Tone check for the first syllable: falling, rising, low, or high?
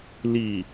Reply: low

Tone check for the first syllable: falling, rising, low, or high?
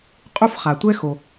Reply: high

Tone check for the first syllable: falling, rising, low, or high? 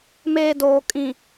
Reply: low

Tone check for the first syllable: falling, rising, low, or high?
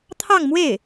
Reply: falling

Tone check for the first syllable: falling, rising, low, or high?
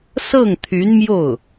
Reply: falling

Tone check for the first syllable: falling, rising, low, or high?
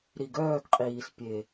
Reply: low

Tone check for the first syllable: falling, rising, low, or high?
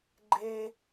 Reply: high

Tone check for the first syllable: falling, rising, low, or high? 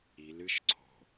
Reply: rising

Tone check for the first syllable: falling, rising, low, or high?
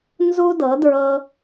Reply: high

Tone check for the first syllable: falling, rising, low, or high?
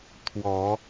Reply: rising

